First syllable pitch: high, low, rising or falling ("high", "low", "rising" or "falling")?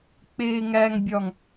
low